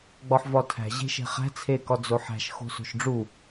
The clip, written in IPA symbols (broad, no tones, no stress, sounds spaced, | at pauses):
ɡ͡b ɒ ħ v ɒ tʰ æ̤ ʑ e̤ ʃ e̤ χ æ̤ t͡sʰ e k ɒ d͡z o ħ æ̤ ʃ x o̤ s o̤ ʃ ɖ͡ʐ u